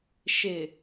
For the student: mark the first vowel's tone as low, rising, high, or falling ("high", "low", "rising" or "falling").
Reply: low